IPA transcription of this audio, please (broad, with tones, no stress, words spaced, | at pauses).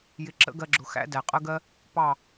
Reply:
jɪ˧ǁə̰˦ɡɜ˧ɡ͡ǁʊ˨ xæ̰˦dæ˨qʼə˦ɡɜ˦ | pɑ˦˨